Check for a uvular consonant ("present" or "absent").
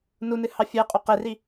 present